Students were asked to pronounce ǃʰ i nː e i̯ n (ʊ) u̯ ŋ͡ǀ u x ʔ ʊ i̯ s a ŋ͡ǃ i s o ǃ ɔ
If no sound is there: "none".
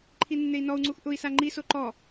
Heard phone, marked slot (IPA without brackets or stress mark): ɔ